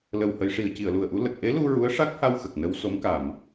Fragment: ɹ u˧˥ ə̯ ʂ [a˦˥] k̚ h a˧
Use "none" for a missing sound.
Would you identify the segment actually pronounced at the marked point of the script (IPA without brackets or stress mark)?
a˦˥